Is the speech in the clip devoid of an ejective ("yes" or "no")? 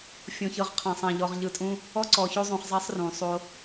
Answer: no